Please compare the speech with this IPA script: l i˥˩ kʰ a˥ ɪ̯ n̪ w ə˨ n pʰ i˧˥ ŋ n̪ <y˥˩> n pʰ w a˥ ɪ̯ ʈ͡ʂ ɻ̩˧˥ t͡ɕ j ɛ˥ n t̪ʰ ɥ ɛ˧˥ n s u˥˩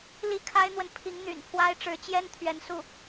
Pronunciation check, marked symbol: incorrect: y̰˨˩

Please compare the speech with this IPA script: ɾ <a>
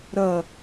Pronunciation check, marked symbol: incorrect: ɐ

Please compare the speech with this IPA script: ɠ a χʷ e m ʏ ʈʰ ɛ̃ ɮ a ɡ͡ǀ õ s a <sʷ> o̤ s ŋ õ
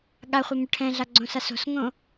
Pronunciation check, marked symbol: incorrect: s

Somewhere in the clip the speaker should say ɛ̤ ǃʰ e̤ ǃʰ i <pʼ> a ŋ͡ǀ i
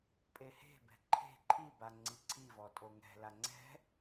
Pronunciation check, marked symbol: incorrect: b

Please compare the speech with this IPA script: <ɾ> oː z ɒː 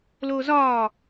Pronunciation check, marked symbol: incorrect: l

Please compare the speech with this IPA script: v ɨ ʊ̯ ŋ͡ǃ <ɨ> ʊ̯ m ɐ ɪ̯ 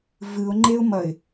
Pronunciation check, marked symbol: incorrect: e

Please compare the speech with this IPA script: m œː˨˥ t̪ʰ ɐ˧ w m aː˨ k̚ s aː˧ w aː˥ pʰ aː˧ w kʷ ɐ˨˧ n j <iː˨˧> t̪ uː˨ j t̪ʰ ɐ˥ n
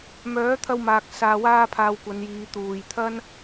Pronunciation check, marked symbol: correct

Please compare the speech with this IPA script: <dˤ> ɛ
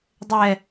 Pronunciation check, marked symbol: correct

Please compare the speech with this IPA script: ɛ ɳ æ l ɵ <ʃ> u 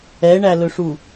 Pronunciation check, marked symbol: incorrect: ʂ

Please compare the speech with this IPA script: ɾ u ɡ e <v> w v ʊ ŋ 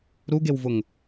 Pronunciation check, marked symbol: incorrect: none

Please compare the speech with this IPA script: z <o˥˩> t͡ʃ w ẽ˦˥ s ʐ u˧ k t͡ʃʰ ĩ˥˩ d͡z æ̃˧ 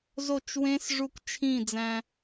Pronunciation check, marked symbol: correct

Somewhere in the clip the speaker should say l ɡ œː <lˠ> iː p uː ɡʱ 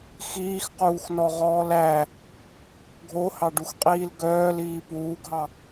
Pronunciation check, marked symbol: incorrect: l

